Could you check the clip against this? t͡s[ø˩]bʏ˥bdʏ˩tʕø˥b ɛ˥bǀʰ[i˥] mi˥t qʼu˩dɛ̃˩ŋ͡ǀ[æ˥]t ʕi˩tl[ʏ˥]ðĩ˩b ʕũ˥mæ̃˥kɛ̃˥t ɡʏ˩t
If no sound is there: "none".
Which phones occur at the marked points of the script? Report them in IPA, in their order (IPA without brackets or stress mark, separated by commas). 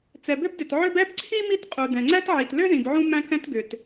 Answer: ɛ˩, i˥, æ˥, ʏ˥